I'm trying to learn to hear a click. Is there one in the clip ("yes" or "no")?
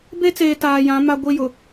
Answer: no